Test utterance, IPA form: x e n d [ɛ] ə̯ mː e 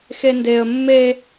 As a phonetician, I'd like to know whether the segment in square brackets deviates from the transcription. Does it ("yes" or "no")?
yes